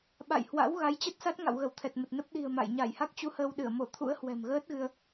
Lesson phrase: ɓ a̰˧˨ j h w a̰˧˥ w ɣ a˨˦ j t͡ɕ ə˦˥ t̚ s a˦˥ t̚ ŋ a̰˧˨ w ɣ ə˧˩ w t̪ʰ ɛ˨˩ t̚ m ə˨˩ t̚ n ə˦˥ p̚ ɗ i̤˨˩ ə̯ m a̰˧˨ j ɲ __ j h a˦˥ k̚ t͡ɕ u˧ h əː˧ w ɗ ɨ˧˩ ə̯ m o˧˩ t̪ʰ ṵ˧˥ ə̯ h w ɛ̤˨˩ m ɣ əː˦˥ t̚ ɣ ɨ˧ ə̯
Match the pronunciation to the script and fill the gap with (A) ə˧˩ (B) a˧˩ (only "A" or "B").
B